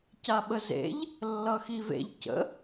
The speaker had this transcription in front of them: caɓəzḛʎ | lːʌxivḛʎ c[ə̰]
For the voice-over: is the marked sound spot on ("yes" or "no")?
yes